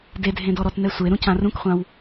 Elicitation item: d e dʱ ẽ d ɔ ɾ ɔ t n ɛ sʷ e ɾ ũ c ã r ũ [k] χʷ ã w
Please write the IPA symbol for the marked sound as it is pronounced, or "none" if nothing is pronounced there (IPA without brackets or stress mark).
k